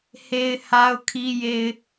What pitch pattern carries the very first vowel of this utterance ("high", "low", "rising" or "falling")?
low